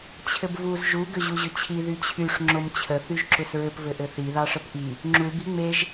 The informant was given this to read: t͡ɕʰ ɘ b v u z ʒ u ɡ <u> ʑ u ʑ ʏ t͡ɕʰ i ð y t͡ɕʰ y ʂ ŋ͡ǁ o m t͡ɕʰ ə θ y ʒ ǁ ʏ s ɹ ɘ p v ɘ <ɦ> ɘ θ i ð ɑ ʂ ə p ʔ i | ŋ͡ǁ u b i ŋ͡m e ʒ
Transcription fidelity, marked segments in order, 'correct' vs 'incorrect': incorrect: ʏ, incorrect: ʔ

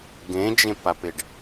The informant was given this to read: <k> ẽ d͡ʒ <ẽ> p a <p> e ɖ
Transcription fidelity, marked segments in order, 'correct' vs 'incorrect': incorrect: ɡ, correct, correct

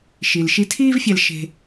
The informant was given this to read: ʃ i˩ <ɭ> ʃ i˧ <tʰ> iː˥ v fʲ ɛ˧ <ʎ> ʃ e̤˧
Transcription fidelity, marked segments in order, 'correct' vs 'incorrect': incorrect: l, correct, incorrect: l

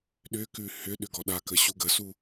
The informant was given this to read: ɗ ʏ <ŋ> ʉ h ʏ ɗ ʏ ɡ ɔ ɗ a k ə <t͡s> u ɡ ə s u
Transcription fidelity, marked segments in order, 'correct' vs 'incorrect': incorrect: k, incorrect: ɕ

